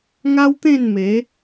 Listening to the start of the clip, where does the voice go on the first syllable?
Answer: high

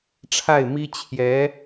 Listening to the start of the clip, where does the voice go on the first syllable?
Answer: falling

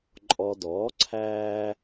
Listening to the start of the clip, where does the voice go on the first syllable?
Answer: low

